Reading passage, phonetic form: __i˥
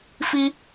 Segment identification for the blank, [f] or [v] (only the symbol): f